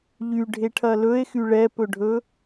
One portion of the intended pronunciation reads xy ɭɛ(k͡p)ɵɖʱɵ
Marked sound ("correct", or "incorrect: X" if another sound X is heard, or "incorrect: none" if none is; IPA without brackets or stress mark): incorrect: p